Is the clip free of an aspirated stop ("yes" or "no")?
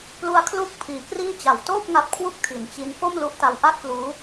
no